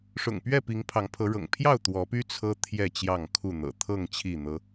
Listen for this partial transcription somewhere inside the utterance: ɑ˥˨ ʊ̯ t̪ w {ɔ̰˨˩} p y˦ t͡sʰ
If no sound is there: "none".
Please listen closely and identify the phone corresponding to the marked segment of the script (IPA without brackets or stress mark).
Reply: ɔ˨˦